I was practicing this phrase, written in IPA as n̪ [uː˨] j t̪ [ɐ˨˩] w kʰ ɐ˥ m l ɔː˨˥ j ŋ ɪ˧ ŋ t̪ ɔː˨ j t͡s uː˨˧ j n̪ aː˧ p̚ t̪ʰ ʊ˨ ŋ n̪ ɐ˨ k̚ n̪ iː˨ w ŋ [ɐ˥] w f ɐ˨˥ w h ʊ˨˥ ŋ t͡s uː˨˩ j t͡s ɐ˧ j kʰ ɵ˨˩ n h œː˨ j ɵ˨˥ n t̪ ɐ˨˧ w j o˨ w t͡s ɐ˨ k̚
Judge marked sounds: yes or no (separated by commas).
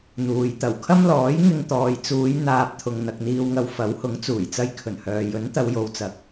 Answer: yes, yes, no